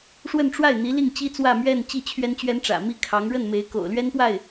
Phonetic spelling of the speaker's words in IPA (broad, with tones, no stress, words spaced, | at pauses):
ʂwə˥˧nʈ͡ʂwa˥˩ɪ̯n̪i˧˥li˥˩ŋ t͡ɕi˥t͡swä˥˧mɥɛ˥˧n t͡ɕi˥˩t͡ɕʰɥɛ˥nt͡ɕɥɛ˥nʈ͡ʂä̰˨˩ mi˥kʰɑ˧˥ŋ ɻə˥˩nme˧˥ɪ̯ ko̰˨˩ʊ̯lɥɛ˥npwa˥˩ɪ̯